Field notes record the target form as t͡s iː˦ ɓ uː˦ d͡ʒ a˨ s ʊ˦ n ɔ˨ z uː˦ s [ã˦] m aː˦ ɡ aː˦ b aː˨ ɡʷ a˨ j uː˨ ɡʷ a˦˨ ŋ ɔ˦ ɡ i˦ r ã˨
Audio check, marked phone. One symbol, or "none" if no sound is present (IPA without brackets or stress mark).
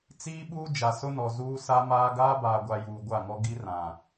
a˦